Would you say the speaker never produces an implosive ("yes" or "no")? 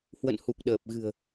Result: no